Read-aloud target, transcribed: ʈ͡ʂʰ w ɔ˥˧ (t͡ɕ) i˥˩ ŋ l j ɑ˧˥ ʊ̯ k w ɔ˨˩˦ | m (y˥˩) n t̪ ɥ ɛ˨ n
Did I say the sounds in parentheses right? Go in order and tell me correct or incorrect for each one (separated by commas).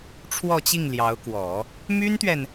correct, incorrect